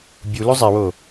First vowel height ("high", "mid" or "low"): high